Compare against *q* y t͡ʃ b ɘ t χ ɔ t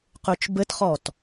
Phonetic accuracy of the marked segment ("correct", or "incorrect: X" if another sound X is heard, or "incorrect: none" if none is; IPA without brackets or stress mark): correct